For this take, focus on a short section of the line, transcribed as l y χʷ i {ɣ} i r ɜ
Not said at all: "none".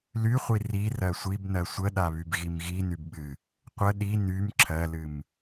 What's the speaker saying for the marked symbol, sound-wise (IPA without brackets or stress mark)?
r